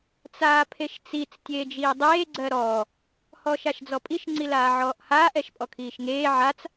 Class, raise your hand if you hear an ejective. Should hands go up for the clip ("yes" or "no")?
yes